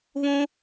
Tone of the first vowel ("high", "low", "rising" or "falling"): high